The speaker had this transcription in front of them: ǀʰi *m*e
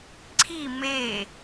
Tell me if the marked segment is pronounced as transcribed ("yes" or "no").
yes